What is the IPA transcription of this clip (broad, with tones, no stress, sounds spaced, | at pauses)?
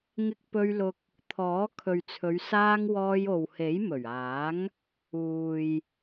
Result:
ŋ ɪ˧ k̚ p ɵ˧ ɥ l ʊ˧ k̚ | t̪ʰ ɔː˨˥ kʰ ɵ˨ ɥ t͡sʰ ɵ˨˧ ɥ s aː˧ ŋ w ɔː˧ j o˨ w h e˨˥ j m ɵ˨˩ ɥ aː˨˥ ŋ | uː˨ j